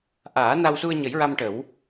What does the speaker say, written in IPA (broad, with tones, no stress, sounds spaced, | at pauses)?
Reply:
ʔ aː˨˩˦ n a˧ w s u˧ ə̯ ɲ ə˨˩˦ j ɹ a˧ m ʈ ə˨˩˦ w